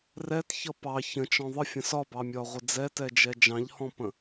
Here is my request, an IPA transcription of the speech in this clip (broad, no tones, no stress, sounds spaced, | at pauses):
r ɛ t ç ʌ p ɑ ç ə̃ t͡ʃ ɔ̃ ðˤ ə fʲ ə̃ s ɒ b ɑ mʲ ɒ ʁʷ ɪ d͡z ɛ t ɛ d͡ʒ ɛ d͡ʒ ɑ̃ ʎ h ɔ̃ p ə̃